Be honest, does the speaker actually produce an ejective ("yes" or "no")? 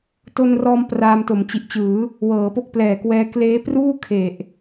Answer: no